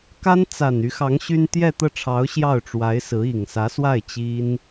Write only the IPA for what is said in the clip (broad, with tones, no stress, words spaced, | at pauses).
ka˥nt͡sa˨˩n y˧˥xɑ˧˥ŋ ɕy˥n t̪jɛ˥˧t̪ɤ˥˩ʈ͡ʂʰɑ˧˥ʊ̯ ɕjɑ˥˩ʊ̯ʈ͡ʂwa˧˥ɪ̯sɹ̩˧˥ i˨˩ŋsä˧˥swa˥˩ɪ̯ t͡ɕi˥n